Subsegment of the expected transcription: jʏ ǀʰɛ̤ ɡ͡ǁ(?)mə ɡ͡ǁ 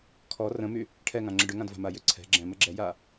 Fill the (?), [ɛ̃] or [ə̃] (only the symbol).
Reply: ɛ̃